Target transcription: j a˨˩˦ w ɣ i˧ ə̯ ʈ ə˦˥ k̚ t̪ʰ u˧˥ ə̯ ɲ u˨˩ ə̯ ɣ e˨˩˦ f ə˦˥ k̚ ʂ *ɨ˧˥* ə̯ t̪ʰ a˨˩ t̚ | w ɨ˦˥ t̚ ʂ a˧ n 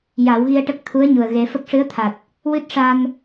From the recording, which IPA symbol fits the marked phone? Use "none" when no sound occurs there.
ɨ˧˥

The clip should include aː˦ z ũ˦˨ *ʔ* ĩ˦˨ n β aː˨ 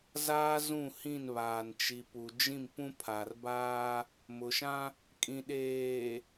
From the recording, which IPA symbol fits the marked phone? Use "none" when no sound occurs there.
h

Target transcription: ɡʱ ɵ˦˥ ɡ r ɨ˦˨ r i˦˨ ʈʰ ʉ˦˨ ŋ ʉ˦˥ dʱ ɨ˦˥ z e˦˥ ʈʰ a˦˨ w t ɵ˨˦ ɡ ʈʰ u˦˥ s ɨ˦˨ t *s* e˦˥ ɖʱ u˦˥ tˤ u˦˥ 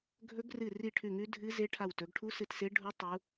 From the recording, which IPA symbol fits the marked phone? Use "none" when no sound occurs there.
s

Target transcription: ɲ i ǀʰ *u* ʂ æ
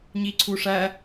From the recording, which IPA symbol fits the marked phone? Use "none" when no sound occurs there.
u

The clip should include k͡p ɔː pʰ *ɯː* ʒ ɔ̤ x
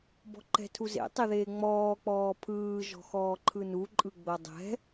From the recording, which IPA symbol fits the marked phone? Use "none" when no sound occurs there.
ɯː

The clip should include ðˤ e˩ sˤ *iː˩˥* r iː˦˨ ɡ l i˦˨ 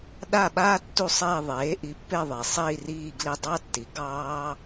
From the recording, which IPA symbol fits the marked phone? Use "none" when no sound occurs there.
iː˦˨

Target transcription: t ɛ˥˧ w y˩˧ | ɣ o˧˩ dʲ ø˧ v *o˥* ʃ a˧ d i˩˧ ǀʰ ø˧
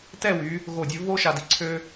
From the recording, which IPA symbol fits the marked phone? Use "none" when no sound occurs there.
o˥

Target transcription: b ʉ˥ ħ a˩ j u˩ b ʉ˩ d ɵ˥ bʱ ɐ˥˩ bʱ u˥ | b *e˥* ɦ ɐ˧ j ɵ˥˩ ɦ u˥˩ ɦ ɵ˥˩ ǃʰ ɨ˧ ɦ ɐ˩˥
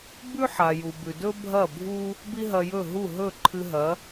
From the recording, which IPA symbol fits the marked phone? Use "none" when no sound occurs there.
i˥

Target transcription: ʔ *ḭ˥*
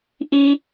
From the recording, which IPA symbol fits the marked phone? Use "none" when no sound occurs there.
i˥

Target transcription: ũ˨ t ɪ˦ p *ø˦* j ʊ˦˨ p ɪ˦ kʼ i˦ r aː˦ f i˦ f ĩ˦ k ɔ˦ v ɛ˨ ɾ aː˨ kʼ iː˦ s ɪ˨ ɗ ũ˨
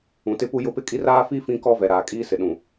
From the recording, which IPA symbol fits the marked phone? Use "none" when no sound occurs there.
u˦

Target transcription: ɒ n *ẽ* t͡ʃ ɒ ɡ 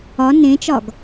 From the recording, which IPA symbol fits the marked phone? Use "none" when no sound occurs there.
ẽ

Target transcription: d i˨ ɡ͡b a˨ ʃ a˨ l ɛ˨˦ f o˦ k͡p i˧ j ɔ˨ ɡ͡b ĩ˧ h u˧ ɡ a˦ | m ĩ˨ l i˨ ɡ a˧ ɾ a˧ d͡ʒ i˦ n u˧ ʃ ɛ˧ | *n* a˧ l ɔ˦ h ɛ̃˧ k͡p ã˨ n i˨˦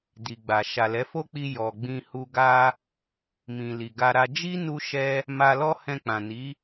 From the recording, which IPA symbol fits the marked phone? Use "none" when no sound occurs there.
m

